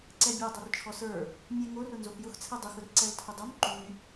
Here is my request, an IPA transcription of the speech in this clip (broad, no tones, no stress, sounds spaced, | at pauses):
ǀ ɛ bʲ o dˤ o r t͡ʃʰ ɔ s ə˞ | mʲ ɛ ŋ o r ʊ n z o x j ʊ x t͡sʰ ɛ dˤ u x ʊ r ǀ ɛ l tʰ ʊ dˤ o m ǃ y